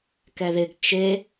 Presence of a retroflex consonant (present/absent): absent